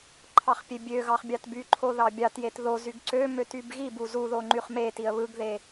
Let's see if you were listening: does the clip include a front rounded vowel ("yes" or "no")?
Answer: yes